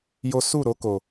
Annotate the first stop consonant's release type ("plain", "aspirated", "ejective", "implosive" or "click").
plain